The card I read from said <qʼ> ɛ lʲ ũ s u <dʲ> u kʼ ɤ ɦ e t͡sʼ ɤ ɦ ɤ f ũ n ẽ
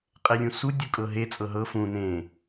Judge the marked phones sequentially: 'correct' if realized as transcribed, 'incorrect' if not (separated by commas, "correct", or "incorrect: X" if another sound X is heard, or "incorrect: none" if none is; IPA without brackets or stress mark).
correct, correct